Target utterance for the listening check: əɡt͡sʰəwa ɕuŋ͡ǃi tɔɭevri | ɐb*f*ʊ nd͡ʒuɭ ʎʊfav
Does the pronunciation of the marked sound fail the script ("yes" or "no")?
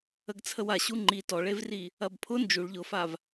yes